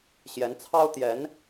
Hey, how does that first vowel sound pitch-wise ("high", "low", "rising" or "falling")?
rising